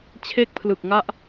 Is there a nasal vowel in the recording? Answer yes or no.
no